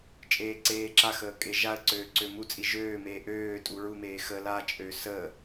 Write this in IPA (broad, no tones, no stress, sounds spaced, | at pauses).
t͡ʃʼ eː ǀ eː ǁ a x əː kʼ e ʒ a ə̯ ǀ øː ǀ ø m u t͡sʼ i ʒ øː m eː ʔ øː tʼ u ɹ u m eː x ə l a t͡ʃʼ ø s ə